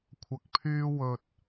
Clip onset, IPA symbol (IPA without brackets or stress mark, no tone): kʷʰ